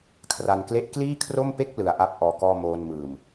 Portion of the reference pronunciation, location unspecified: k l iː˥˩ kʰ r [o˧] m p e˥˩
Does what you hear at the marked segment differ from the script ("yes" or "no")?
yes